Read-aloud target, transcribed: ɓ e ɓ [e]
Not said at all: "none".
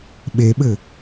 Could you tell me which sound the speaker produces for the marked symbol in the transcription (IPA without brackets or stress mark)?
ɘ